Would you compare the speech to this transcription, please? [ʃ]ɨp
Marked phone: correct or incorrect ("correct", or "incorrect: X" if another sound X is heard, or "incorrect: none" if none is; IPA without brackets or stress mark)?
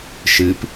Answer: correct